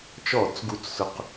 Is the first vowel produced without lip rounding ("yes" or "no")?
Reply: no